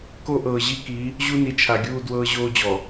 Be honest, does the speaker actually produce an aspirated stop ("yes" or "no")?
yes